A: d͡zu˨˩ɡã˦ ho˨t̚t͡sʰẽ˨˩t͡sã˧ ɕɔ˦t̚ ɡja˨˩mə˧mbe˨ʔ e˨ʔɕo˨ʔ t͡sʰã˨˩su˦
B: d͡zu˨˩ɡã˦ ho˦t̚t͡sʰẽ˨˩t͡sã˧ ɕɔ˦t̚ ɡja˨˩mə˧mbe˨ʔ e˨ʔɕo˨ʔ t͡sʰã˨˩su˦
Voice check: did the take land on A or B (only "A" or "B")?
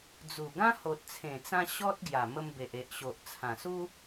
A